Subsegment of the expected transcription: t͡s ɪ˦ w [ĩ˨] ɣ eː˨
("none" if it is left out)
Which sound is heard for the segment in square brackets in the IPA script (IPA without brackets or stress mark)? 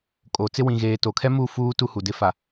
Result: ĩ˨